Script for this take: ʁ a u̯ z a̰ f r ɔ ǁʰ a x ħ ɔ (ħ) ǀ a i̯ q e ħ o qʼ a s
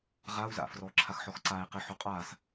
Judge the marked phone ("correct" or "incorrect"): incorrect